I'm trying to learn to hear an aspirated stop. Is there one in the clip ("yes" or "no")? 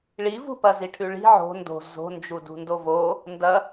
yes